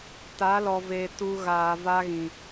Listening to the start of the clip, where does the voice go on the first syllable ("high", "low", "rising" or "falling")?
rising